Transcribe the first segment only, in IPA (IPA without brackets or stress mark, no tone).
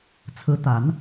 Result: t͡sʰ